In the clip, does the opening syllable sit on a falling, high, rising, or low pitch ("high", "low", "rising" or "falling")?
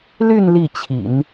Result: falling